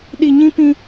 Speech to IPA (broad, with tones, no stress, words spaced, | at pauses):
ɗi˨ɲĩ˦ pĩ˦